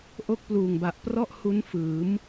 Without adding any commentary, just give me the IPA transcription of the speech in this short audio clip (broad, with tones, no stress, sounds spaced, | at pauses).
ʔ o˦˥ k̚ p l uː˨˩ ŋ b a˨˩ ʔ p r ɔ˥˩ ʔ h u˦˥ n f ɯː˩˦ m